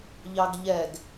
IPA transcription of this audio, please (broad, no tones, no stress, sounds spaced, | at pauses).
ʎ ɑ ɡ ʎ ɛ ɡ